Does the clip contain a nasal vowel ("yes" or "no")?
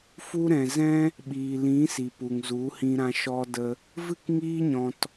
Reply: yes